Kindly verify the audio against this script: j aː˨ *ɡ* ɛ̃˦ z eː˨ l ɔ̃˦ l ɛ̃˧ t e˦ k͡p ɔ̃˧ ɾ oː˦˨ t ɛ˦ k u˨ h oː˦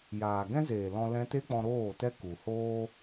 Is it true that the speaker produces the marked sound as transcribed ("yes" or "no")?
yes